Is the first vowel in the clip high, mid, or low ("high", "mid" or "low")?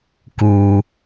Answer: high